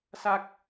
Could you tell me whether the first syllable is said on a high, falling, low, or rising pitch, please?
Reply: high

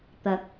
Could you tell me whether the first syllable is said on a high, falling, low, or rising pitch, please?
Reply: rising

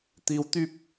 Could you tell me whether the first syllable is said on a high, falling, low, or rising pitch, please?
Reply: low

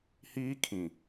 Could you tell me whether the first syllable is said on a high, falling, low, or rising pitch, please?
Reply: high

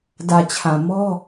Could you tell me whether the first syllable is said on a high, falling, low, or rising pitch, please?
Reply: low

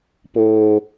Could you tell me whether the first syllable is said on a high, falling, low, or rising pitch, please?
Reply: high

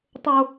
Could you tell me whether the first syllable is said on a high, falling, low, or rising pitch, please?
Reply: high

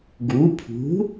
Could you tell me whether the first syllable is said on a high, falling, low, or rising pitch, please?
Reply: rising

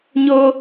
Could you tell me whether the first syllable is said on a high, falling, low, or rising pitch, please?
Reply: high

